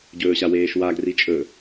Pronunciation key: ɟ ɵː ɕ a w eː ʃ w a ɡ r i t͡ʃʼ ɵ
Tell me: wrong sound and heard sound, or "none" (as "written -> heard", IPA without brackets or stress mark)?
none